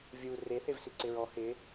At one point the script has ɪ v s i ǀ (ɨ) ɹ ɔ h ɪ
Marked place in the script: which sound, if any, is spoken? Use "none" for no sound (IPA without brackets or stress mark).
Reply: ɪ